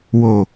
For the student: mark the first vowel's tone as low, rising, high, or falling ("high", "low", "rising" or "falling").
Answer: low